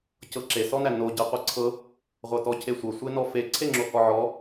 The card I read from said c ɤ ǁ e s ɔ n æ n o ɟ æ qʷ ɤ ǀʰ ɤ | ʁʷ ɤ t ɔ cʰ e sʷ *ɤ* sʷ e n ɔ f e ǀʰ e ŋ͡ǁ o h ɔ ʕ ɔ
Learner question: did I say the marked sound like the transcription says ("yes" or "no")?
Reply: yes